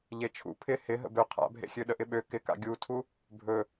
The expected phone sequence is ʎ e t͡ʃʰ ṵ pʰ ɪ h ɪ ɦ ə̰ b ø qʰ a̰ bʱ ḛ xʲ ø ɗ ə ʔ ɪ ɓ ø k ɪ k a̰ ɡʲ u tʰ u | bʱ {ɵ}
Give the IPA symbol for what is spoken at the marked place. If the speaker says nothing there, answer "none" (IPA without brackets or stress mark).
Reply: ɵ